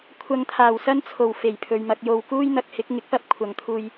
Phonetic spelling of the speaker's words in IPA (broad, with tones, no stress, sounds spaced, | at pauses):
kʷʰ ɐ˨ ŋ t̪ʰ aː˨˩ w s ɐ˥ n t͡sʰ o˨˩ w f e˨˩ j pʰ ɵ˨ ɥ m ɐ˧ k̚ j o˧ w k uː˥ j n̪ ɐ˧ k̚ h ɪ˨˥ k̚ ŋ ɪ˨˥ k̚ p ɐ˧ p̚ kʷʰ ɐ˨ ŋ t̪ʰ uː˧ j